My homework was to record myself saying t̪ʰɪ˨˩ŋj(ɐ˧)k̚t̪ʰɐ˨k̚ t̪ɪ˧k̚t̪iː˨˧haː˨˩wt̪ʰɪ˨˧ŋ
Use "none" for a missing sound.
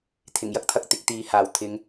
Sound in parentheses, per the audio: ɐ˥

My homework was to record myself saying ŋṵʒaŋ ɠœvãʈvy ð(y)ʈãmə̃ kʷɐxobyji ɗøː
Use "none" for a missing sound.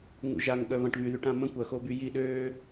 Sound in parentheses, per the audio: y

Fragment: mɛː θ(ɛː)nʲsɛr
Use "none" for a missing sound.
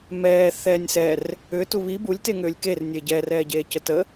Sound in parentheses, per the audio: ɛː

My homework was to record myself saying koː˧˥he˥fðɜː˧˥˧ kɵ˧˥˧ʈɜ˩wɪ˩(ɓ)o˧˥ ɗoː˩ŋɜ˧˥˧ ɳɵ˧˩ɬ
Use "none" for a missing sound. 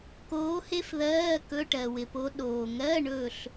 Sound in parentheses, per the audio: p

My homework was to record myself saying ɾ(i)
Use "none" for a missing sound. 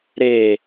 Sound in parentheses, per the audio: e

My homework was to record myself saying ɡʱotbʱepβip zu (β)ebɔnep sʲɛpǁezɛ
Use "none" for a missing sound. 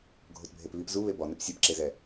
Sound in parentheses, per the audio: β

